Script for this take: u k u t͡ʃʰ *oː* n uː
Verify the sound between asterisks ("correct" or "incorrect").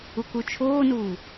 correct